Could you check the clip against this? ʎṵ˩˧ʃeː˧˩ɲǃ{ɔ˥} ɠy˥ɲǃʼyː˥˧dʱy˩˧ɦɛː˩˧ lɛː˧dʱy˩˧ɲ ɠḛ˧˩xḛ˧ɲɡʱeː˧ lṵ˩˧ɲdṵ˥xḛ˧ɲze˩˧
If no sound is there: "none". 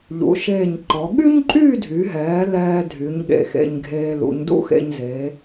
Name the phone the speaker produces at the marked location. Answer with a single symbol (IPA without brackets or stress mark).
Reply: ɔ˩˧